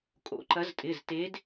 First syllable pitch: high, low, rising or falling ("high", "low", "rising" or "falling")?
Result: rising